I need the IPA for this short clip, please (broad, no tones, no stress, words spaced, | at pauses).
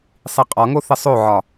sˤiqʼɒŋo θəsˤoʕɒ